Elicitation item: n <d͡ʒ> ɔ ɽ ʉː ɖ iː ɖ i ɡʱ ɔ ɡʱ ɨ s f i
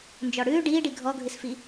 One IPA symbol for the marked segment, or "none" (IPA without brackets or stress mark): d͡ʒ